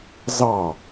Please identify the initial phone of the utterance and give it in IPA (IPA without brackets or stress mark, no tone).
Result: z